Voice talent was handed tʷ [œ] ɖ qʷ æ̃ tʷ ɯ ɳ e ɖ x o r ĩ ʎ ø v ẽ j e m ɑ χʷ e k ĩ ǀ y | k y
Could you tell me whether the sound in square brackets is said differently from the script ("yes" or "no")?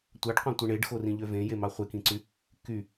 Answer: yes